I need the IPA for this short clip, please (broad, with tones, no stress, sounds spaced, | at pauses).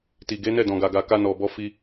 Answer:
t i˨ ɡ e˨˦ n ɛ˦˨ d ɔ̃˨ ɡ a˨ ɡ a˨ k a˧ n ɔ˨ b ɔ˧ f i˧